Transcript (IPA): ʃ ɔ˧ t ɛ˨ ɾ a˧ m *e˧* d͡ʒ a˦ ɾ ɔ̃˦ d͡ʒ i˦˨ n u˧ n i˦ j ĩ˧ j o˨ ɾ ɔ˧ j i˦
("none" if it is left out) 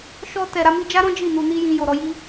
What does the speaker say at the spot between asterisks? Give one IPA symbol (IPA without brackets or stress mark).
i˧